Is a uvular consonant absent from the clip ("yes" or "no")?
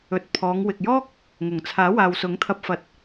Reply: yes